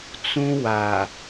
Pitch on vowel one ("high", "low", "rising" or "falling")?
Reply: high